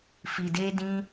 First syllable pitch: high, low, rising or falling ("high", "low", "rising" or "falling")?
low